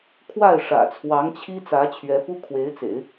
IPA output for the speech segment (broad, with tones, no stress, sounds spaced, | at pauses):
kʰ w a˥˩ ɪ̯ ʂ ä̰˨˩ t͡sʰ w ɑ˧˥ ŋ t͡ɕʰ i˥ t͡s ä˧˥ t͡ɕʰ ɥ ɛ˧˥ p u˥ kʰ w e˧˥ ɪ̯ t͡s ḛ˨˩˦ ɪ̯